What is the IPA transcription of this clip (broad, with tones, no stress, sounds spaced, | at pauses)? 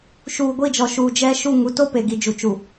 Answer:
ʃ uː˨ ɡʷ i˦˨ d͡ʒ ɔ˨ ʃ uː˨ d͡ʒ ɛ˦ ʃ u˦˨ ŋ u˨ t o˦ p e˨ ɡ i˨ d͡ʒ u˨ t͡ʃ u˨